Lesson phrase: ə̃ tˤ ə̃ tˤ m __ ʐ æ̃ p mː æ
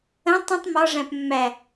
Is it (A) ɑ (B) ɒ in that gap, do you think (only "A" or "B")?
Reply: B